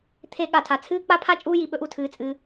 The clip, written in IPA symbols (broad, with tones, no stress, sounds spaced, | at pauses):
t̪ʰ e˥ ɠ a˩ tʰ a˩ t͡sʰ ɨː˥ k͡p a˥ pʰ a˥ t͡ʃʼ uː˥ j i˩ ɓ ɵ˥ ʔ u˩ tʰ ɨː˩ t͡sʼ ɨ˩